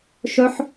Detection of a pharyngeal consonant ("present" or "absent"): present